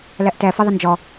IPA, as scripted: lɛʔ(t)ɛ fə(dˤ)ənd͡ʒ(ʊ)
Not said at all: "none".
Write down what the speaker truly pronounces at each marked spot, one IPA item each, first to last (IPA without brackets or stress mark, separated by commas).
t, ðˤ, ɔ